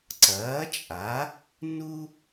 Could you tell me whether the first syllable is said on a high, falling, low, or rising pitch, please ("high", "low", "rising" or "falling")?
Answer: rising